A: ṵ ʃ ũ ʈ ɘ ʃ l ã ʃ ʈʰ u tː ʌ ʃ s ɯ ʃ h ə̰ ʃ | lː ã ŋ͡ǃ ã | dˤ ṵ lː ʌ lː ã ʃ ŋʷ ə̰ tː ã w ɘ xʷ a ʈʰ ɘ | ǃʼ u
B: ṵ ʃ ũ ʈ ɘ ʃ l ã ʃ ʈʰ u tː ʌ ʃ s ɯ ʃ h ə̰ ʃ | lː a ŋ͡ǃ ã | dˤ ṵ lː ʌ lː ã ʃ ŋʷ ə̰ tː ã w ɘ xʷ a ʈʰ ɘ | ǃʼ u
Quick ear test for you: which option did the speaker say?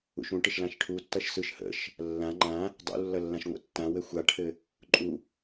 A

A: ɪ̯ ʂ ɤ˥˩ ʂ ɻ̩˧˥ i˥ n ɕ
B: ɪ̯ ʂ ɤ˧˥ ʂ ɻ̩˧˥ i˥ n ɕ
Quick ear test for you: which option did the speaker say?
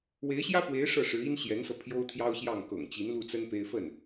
A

